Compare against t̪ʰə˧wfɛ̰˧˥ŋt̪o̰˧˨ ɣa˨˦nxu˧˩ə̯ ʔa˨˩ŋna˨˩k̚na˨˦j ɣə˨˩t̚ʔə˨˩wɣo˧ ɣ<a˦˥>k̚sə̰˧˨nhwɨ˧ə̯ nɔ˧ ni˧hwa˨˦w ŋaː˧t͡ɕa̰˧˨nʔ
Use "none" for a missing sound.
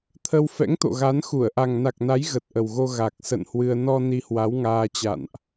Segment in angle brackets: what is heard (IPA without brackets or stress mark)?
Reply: a˨˩